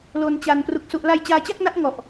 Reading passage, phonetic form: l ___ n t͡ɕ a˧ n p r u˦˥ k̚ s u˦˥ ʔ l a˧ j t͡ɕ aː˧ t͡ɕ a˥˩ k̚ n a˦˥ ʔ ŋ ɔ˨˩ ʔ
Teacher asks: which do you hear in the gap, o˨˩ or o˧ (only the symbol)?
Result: o˧